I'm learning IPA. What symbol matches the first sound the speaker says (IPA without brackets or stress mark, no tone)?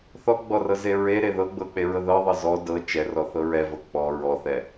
θ